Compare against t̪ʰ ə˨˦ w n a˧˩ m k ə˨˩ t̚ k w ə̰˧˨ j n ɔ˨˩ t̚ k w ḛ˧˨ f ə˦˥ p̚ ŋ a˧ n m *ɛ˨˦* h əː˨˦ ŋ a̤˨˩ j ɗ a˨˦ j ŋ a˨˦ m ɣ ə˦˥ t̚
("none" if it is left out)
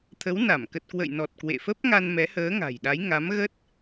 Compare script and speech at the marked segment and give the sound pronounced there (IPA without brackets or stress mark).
ɛ˨˦